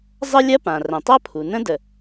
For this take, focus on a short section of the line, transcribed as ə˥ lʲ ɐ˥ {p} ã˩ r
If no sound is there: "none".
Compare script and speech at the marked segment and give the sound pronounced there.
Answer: p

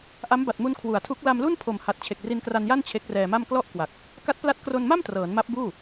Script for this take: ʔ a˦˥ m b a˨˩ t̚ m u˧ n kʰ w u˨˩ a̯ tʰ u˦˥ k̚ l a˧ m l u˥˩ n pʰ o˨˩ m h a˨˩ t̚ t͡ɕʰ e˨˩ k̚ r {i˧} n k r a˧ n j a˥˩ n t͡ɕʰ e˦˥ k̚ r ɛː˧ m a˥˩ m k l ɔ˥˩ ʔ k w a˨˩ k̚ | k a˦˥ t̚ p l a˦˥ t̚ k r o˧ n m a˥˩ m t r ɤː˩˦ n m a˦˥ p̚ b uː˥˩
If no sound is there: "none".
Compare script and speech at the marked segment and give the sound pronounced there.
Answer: i˧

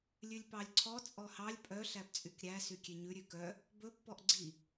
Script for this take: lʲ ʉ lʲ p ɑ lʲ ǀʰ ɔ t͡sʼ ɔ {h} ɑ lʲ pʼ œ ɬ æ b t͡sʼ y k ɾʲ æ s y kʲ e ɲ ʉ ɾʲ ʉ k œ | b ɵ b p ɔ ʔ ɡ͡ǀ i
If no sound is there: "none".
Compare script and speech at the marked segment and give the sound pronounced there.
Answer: h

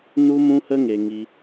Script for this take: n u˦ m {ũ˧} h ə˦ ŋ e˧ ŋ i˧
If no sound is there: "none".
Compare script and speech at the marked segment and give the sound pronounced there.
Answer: ũ˦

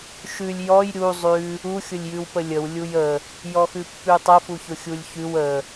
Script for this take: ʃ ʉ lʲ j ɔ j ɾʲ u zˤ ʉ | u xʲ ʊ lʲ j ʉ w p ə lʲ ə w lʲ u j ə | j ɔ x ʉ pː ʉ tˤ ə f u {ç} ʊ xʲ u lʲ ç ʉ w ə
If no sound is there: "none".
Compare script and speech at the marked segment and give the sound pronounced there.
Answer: ç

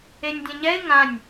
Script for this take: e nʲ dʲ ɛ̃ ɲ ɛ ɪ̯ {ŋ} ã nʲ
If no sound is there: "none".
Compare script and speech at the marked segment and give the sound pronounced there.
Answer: ŋ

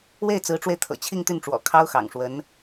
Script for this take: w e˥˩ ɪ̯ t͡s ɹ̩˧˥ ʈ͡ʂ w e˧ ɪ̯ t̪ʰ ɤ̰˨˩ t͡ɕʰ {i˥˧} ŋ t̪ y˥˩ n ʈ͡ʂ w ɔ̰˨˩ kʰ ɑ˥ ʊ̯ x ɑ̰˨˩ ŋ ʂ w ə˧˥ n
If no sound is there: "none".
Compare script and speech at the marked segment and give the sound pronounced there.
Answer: i˥˧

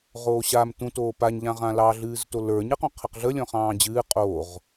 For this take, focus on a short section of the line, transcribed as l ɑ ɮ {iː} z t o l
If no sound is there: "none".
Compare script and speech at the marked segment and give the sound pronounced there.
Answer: ɨː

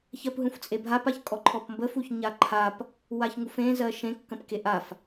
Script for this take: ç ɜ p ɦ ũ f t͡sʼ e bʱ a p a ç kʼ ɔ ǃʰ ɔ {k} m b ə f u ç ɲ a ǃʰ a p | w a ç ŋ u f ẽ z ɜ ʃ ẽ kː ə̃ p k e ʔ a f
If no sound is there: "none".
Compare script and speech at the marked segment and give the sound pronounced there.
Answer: p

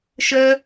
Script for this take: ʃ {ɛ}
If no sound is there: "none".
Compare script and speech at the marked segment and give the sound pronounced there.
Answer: œ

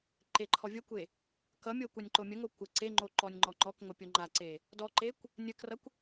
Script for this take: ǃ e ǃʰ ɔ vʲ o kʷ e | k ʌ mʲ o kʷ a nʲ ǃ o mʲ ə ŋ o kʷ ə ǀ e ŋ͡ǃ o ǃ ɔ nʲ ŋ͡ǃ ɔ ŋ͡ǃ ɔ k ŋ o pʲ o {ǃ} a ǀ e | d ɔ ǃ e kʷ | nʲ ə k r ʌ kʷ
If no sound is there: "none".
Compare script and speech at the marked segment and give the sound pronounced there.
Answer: ŋ͡ǃ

